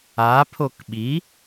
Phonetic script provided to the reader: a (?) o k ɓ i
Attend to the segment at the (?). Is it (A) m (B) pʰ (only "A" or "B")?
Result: B